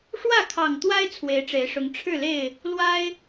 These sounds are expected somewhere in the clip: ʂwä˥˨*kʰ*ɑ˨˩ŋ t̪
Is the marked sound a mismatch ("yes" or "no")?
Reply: no